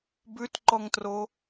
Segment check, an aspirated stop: absent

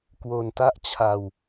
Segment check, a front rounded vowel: absent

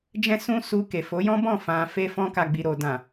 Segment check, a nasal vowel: present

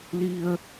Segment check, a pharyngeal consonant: absent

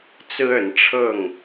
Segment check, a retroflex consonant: present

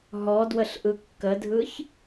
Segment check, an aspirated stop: absent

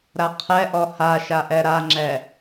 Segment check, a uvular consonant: present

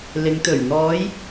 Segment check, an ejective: absent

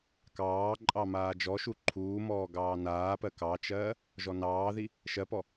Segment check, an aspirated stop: present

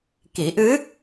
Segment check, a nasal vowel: absent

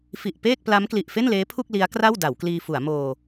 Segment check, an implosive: absent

